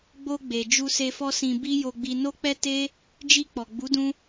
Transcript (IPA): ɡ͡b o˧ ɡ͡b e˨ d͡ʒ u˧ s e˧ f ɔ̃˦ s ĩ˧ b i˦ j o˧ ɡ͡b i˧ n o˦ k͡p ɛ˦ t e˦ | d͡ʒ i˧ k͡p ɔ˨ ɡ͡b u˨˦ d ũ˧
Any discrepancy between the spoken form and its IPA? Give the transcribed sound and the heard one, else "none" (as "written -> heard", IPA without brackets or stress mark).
ɔ̃˦ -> ɔ˦